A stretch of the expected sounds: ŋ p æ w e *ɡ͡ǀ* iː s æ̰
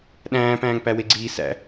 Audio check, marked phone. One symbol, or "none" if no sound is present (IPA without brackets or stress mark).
ɡ͡ǀ